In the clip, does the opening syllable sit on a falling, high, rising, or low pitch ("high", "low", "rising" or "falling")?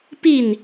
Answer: falling